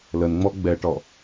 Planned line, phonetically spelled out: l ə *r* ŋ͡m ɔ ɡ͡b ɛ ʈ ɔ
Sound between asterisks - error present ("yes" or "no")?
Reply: yes